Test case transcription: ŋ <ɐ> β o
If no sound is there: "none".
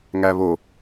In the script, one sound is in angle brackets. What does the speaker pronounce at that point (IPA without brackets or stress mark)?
æ